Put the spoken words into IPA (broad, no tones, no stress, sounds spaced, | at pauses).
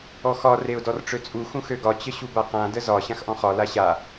ɔ x ɒ r e ʊ̯ d ɔ r ʈ͡ʂ ø t͡sʼ u x ũ x ø ɡ ɒ t͡ɕ ə ɕ u b a q ã d ə z ɒ ɕ ã x ʔ ɔ̃ χ ɒ l a ɕ a